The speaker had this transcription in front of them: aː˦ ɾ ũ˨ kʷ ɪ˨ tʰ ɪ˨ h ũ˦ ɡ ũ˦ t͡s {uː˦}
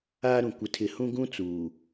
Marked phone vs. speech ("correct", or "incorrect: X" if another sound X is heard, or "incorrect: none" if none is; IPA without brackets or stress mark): incorrect: uː˨